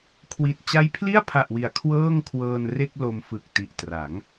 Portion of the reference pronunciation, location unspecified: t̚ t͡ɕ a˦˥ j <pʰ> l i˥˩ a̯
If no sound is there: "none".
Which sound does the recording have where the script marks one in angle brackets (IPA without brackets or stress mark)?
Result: pʰ